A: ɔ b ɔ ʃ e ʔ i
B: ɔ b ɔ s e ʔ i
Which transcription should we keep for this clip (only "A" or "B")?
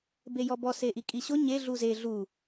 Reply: B